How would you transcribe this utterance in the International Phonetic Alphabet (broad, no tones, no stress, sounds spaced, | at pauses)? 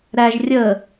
ɾ æ ʒ rʲ əː